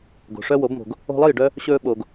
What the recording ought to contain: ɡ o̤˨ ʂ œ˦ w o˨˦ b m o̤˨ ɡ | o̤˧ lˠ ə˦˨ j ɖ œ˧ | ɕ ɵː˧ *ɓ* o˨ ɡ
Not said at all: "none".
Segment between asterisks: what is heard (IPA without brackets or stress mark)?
ɓ